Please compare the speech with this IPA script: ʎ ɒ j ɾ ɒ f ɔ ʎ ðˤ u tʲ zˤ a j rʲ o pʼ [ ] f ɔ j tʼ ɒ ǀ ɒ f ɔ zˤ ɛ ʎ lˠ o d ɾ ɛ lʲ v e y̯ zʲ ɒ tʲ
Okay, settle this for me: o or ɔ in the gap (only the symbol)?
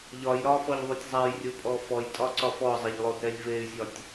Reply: ɔ